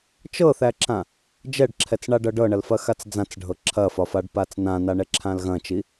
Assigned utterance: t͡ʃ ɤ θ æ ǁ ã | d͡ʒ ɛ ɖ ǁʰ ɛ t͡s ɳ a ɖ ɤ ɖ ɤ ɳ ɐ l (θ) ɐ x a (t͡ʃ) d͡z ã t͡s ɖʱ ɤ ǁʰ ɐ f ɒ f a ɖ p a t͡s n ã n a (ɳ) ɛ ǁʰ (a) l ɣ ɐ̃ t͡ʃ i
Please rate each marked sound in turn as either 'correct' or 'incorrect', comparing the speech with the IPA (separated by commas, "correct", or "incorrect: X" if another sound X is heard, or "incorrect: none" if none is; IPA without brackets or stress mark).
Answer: incorrect: f, incorrect: t͡s, correct, incorrect: ã